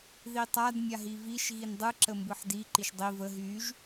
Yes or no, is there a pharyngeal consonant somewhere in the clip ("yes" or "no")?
yes